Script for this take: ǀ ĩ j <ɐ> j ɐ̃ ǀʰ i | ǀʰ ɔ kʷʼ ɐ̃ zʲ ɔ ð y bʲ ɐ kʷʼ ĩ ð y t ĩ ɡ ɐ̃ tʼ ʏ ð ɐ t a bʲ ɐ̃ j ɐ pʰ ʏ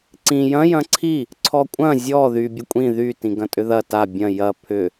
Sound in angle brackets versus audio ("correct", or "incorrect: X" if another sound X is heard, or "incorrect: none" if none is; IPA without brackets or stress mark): incorrect: ɐ̃